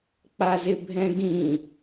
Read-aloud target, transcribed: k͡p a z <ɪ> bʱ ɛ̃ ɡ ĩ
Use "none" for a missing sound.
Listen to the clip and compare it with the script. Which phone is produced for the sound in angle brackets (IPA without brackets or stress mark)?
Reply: ɪ